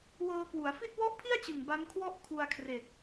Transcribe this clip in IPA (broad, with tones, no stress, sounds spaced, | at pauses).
w ɤː˧ k w u˩˦ a̯ f i˥˩ t̚ w ɔ˥˩ ʔ pʰ i˥˩ a̯ t͡ɕ ɯ˨˩ ŋ b a˦˥ n kʰ w ɔ˥˩ ʔ kʰ u˧ a̯ kʰ r e˨˩ k̚